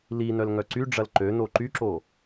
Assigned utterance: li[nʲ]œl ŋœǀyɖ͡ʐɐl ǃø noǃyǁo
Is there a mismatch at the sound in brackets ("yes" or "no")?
yes